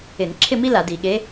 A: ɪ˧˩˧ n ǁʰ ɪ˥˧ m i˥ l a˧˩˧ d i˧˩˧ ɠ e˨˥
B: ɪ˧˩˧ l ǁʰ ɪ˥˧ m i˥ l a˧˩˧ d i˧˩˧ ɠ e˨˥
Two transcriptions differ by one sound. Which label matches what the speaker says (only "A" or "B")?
A